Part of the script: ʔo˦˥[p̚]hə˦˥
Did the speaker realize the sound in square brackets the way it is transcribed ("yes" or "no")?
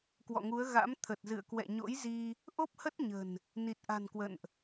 yes